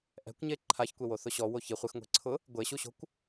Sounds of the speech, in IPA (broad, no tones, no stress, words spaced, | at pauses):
ʔɛ̤kʷɲe ǃʰaçkʷewoθʊ ɕɔwo çi χʷɪxŋʷe̤ǀʰʊ | ɡʷeɕuɕo̤kʷ